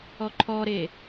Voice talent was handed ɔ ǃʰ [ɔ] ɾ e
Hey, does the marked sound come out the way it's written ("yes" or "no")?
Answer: yes